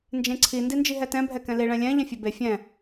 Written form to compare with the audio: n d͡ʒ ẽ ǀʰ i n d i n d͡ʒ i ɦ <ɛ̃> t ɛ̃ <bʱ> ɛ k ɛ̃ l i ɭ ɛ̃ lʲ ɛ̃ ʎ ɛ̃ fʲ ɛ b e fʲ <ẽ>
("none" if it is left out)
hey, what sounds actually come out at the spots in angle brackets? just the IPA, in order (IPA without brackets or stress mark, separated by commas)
ɛ, bʱ, ɛ̃